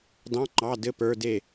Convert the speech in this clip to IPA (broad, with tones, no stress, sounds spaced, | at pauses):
d ɑ̃˧˥˧ ŋ͡ǃ ɑ˧˥˧ d ɘ˧˥˧ p ə˞˧˥˧ d e˥˨